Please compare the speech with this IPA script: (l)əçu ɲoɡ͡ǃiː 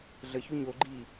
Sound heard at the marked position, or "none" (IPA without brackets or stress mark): ɮ